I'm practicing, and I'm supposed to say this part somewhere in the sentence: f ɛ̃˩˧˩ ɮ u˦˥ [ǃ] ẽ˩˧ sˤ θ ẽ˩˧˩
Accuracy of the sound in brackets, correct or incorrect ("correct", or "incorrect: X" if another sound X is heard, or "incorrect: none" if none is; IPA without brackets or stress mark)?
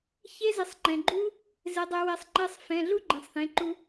incorrect: ɡ͡ǃ